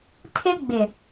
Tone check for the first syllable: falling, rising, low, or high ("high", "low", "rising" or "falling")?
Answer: high